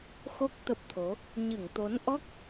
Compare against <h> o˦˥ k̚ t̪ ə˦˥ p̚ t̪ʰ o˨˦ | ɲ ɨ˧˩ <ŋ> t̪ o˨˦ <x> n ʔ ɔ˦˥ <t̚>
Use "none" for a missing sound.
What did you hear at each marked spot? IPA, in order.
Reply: x, ŋ, none, k̚

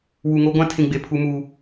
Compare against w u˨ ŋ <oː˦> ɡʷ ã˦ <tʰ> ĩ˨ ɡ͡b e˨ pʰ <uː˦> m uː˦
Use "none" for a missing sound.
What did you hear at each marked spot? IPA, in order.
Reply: o˦, tʰ, u˦

